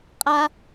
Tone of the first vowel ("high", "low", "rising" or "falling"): high